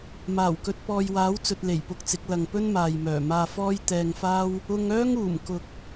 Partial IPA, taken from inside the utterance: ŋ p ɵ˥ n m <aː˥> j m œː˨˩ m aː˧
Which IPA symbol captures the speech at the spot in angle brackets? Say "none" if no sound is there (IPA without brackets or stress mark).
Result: aː˨